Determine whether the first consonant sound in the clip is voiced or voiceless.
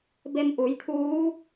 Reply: voiced